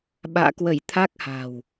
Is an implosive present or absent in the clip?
present